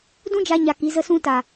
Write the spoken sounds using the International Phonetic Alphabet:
d ũ˦ d͡ʒ a˧ ɲ a˧ k i˨˦ z ə˦ s ũ˦ t a˨

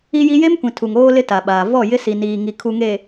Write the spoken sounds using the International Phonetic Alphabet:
i˦ j i˦ j e˦ m kʷ ĩ˨ tʰ u˨ ŋ oː˦ l ɪ˦ t a˨ ɓ aː˨ v ɔ˦˨ j ɪ˦ s i˨ n iː˨ ŋ i˨ kʰ u˨ ŋ e˨

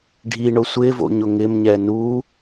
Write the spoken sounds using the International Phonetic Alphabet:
ɖʱ i ɳ ʊ sʷ ɪ v o̰ ɲ ʊ ŋ ɪ m ɲ ɛ n u

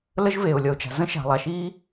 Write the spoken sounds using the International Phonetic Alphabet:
l ə˥ ʒ v eː˩ ʊ̯ lʲ ʌ˩ ʊ̯ t͡ʃ a̤˩ z ə̃˥ ʃ a̤˩ lˠ a˩ ʃ iː˦

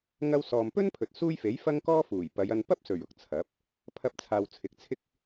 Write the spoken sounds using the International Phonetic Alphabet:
ŋ ɐ˧ w s ɔː˨ m p ɵ˥ n pʰ ɵ˨ t̚ s uː˥ j f e˨˥ j f ɐ˥ ŋ k ɔː˥ f uː˨˩ j p ɐ˨˧ j ɐ˧ n p ɐ˥ p̚ s ɵ˨˩ ɥ ʊ˨ k̚ t͡sʰ ɐ˨˥ p̚ | pʰ ɐ˧ p̚ t͡sʰ aː˨ w t͡sʰ ɪ˨ k̚ t͡sʰ ɪ˥ k̚

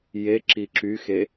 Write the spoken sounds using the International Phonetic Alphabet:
j e ǁ i ǁ y x e

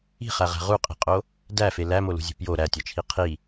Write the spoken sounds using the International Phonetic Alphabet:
i̤ χ æ ʁ æ̤ ʁ u qʼ i̤ qʼ o | d æ f e l æ m o l ṳ zʲ ṳ p j o ɾ æ tʲ ɒ t͡ʃʰ i qʰ i

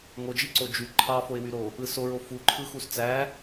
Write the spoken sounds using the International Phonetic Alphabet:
ŋ o d͡ʒ i ǀ o d͡ʒ y ǃʰ ɑ f o ɪ̯ w y ɾ o | ɯ s o ɹ o f u ǃʰ ɯ x u s t͡s æ

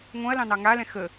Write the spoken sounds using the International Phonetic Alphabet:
ŋ õ ɐ̯ l ɑ̃ n ɑ ŋ a l ɛ̃ x ə

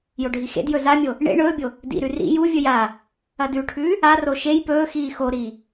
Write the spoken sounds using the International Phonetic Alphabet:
j o ɖʱ i x ḛ d j ɵ z a mʲ o | ɳ ḛ ɳ ɵː bʲ o | d ḭ ɾ ʉ r ḭ j u vʲ ɵ j a | ɐ d ʉ ʈʰ ʉː | a r o ʃ e j p ɵː x iː x o ɾ iː

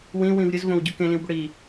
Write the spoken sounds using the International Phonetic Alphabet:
w ĩ w ĩ v ɾʲ ɨ z v õ w ɟ u k ẽ l ĩ w b ɵ ɽ i

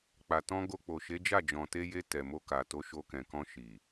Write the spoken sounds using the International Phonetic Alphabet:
k͡p a˨ t ɔ̃˧ ɡ o˧ k͡p o˨ ʃ e˨˦ d͡ʒ a˦˨ d͡ʒ ɔ̃˨ t e˧ j e˧ t ɛ˨ m o˧ k a˨ t o˧ ʃ o˧ k ɛ̃˨ k ɔ̃˧ ʃ i˨

